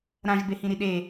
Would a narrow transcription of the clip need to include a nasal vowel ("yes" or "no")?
yes